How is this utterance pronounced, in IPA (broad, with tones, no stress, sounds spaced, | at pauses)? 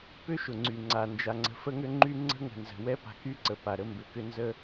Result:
p ʏ˦ ʃ ʊ˨ ŋ͡ǀ y˨ ŋ͡ǀ a˨ n d͡ʒ a˨ ŋ͡ǀ ə̤˨ f ə˦ ŋ ʏ˦ ŋ͡ǃ y˦ ŋ͡ǀ ə̤˦ ŋ ə̤˨ n z ə̤˨ w ɛ˦ p a̤˨ k y˦ ǀ ə˨ p a˨ ɾ ə˦ m b ʏ˨ k ʏ˦ n z ə˦